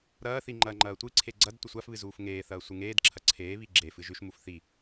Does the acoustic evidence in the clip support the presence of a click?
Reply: yes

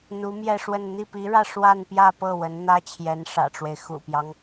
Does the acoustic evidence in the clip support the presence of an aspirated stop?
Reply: yes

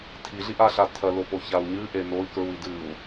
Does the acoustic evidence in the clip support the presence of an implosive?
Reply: no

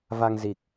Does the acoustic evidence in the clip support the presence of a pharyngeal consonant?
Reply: no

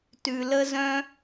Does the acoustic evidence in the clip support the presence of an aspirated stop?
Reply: no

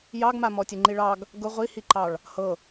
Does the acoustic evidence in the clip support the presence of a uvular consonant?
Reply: yes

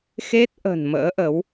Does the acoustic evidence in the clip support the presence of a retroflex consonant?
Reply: no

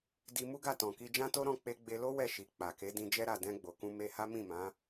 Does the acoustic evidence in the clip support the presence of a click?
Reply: no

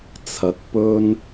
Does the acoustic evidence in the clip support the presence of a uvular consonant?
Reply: no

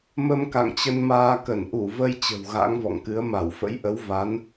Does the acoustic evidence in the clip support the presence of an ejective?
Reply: no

